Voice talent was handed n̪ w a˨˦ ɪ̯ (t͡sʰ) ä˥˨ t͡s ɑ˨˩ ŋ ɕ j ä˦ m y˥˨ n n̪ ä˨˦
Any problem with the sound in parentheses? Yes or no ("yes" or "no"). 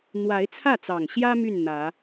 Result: no